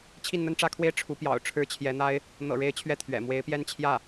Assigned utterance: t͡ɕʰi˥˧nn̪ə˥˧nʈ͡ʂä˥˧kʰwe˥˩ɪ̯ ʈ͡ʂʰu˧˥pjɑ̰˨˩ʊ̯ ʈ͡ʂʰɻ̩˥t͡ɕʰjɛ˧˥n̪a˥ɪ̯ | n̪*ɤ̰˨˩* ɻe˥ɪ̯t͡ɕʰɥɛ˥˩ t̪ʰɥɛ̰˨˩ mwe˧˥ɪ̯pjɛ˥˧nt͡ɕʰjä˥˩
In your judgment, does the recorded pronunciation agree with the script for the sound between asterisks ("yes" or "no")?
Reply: yes